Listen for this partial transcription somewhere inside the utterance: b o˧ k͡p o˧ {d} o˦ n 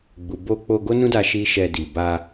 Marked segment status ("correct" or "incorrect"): incorrect